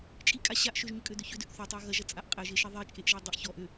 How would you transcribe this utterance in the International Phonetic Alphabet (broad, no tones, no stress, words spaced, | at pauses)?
t͡ʃʼikʼa ɕaʔ ʃøʒɲʏkʼødʏ çʏdøʔ θøtˤa ɣɐʒɐt͡sʼaʔ qʼɛʒeʃi ðˤit͡ʃʼeʔʒɛ dˤəʔ çɔ ʔø